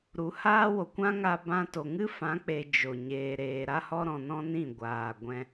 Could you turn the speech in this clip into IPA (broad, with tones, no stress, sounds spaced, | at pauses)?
ɾ u˨˦ h aː˦ w o˨ kʷ ã˦ ŋ a˧ b ã˧ t o˨ ŋ ɨ˦ f ã˨˦ k͡p e˨ d͡ʒ o˨ ɲ eː˨ ɾ eː˨ ɾ a˦ h ɔ˦ ɾ ɔ̃˧ n ɔ̃˦ n ĩ˦˨ ɡʷ aː˨ ɡʷ ɛ̃˧